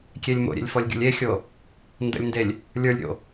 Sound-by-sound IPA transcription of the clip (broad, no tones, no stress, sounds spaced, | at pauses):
kʲ e lʲ m o̰ ɾʲ ḛ lʲ f ɔ lʲ ɡʲ o̰ lʲ e xʲ o | n d ə̰ lʲ n d e lʲ | lʲ ə˞ lʲ ɾʲ o̰